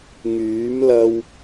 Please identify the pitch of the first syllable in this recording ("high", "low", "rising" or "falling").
rising